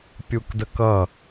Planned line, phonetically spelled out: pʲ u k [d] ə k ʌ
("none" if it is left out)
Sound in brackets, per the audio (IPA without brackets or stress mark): d